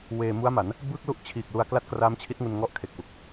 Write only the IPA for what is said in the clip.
w eː˧ m u˦˥ a̯ m a˩˦ n | b ɯː˥˩ k̚ l u˥˩ ʔ t͡ɕʰ iː˨˩ k̚ l u˧ a̯ k l a˥˩ t̚ k r aː˦˥ m t͡ɕʰ i˦˥ t̚ ŋ u˧ n ŋ ɔ˦˥ ʔ kʰ e˨˩ k̚ w u˨˩ k̚

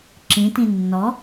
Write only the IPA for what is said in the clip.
ǁ ĩ t ĩ nː ɔ

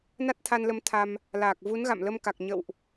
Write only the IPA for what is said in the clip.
n a˦˥ t̚ t̪ʰ a˧ n l ə˨˦ m t̪ʰ a˧ m | l aː˨˩ k̚ v u˨˦ n ɣ a̰˧˨ m l ə˧ m k a˨˩ k̚ ɲ ə̰˧˨ w ʔ

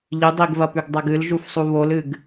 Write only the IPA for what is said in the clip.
ʎ ɨ dˤ i ɡ v ɐ p ʉ ɡ dˤ a ɡ ɨ l ʒ u f sˤ u β o l ɨ ɡ

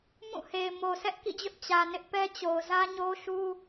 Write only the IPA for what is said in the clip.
m ũ˦˨ h e˨ ɪ̯ m o˨ sʰ ɛ˦ ʔ k ḭ˦˨ d͡ʑ ʊ˦ ʔ t͡ɕ ä˨ n ɪ˦ ʔ p ɛ˦ t͡ɕ o˨ ʊ̯ z ä˦ ɲ o˦ ʃ u˦

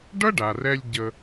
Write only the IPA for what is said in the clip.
ɖ ʌ˥ ɖ a˩ r ɛ˧ lʲ ɟ ə˧

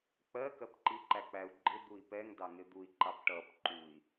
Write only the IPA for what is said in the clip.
k͡p ɜ k ɜ p ǃ i ǃ æ k͡p æ u̯ ɡ͡ǃ ɪ d̪ u i̯ p ɛ ŋ d ɑ ŋ ɪ d̪ u i̯ ǃ ɑ p ʈ ʌ p ǃ u i̯

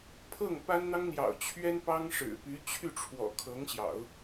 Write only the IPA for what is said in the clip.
pʰ ɤ˥˩ ŋ p a˥ n n̪ ɑ˥ ŋ n̪ j ɑ̰˨˩ ʊ̯ t͡ɕʰ ɥ ɛ˥ n p ɑ˥ ŋ ʂ ɻ̩˨˩ p y˧˥ t͡ɕʰ y˥˩ ʈ͡ʂʰ w ɔ̰˨˩ kʰ ɤ˧˥ ŋ ɕ j ɑ̰˨˩˦ ʊ̯

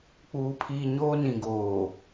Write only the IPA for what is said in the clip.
k͡p uː˨ pʰ iː˨ ɲ oː˦ n ĩ˨ ɡ oː˨

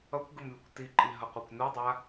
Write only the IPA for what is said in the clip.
ʌ kʷ ɡ ɯ m lʲ ʌ kʷ t i ǃʼ i ɦ ʌ qʷ a kʷ n u dˤ a

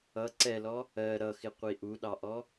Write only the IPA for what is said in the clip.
ʌ ǀ ɛ l ɔ | ɜ ɾ ʌ x ɪ qʷ i ʔ u ɗ ɑ ʔ ɔ

